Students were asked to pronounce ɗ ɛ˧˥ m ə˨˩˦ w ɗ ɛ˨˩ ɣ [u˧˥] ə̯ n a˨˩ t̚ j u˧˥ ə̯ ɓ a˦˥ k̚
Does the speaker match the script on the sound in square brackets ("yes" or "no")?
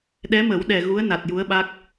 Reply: yes